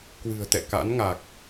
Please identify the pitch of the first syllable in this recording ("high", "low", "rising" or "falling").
low